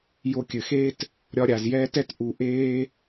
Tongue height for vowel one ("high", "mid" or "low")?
mid